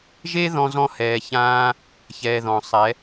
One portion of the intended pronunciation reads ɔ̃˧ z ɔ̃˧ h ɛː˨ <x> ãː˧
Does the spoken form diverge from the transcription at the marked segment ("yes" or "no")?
yes